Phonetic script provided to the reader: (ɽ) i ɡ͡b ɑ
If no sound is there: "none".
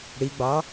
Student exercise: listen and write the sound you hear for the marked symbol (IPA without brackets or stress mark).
ɽ